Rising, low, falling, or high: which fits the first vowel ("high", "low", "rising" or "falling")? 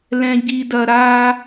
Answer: low